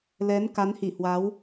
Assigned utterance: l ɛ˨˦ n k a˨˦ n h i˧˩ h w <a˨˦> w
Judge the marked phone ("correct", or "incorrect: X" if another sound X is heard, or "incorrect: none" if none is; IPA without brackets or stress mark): correct